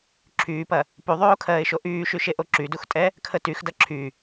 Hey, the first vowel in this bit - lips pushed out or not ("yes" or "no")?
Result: yes